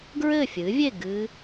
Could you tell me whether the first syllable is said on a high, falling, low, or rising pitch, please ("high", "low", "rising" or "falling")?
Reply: falling